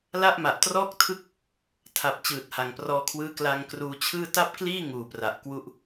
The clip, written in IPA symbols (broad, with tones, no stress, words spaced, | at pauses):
la˥˩ʔma˨˩ʔtrɔː˥˩k̚tʰɯ˥˩k̚ | tʰa˨˩p̚ t͡ɕɯː˨˩t̚ha˨˩ŋprɔː˧kʰwɯː˦˥ kla˧ŋkruː˧t͡ɕʰɯː˥˩ ta˥˩p̚kliː˥˩ ŋuː˨˩pra˨˩ʔkwu˦˥ʔ